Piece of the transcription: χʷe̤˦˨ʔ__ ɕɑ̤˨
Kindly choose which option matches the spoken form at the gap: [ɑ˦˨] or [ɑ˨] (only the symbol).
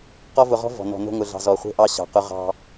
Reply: ɑ˦˨